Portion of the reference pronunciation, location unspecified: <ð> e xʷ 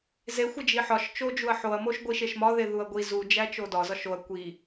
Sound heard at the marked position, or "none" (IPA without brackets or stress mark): z